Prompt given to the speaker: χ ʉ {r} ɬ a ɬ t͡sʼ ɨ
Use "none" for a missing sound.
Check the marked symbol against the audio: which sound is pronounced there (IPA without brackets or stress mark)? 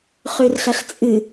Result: r